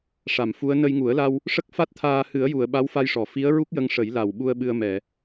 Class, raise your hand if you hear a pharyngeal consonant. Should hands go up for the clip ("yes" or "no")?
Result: no